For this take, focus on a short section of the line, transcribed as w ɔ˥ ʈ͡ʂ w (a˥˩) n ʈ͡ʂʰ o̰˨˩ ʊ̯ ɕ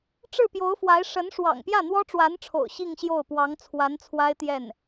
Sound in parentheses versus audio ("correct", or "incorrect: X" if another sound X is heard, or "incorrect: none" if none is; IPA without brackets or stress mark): incorrect: a˧˥